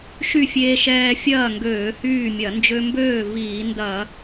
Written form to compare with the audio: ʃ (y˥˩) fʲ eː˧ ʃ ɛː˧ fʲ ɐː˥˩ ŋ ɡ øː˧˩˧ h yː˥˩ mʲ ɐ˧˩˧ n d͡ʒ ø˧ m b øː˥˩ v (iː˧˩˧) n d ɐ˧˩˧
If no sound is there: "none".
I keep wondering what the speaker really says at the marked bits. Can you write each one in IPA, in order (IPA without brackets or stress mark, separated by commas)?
y˥˩, iː˧˩˧